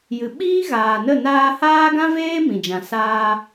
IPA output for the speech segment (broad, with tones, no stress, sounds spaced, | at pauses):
j ɨ˨ ɓ iː˦ ɣ aː˨ n ə˦˨ n aː˧ h aː˦ ɡ ã˦ v eː˦ m ĩ˨ d͡ʒ ã˨ s aː˧